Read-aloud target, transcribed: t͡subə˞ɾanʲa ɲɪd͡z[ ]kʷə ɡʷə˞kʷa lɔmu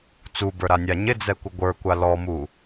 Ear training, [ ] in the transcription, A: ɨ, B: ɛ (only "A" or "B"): B